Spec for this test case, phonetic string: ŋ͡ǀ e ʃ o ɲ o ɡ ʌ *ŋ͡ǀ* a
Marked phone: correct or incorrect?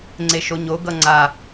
correct